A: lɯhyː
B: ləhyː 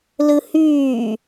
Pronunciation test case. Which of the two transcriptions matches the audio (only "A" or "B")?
A